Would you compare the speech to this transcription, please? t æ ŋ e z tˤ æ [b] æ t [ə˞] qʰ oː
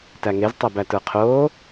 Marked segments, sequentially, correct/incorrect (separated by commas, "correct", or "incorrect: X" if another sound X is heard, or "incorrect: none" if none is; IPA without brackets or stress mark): correct, correct